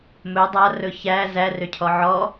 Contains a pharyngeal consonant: yes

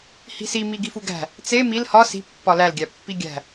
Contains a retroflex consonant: no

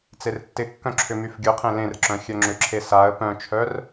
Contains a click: yes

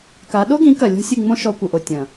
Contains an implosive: yes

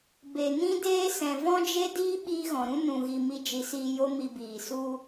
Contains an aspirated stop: no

